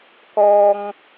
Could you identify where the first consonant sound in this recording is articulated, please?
velar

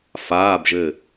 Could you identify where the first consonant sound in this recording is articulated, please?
labial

